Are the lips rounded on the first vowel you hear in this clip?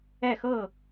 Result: no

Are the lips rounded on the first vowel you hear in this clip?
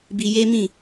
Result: no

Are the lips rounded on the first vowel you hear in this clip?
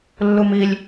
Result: yes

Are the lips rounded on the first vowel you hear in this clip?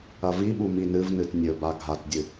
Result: no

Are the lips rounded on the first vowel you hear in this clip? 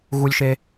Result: yes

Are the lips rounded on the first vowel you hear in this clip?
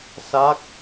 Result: no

